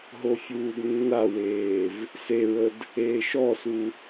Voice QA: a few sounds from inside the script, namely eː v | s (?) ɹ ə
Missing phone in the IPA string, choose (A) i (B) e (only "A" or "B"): B